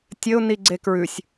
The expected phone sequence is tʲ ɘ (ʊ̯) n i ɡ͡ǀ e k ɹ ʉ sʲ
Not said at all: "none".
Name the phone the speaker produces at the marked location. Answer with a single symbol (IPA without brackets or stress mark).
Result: ʊ̯